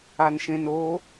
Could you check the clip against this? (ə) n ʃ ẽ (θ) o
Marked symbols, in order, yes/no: no, no

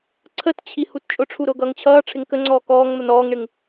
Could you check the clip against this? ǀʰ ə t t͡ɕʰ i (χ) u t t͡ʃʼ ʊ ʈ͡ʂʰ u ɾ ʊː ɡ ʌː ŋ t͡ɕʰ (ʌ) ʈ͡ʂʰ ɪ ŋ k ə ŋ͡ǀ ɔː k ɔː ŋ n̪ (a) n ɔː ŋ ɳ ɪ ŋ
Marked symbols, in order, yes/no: no, no, no

